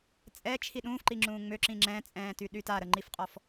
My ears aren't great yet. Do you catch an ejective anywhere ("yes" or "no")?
yes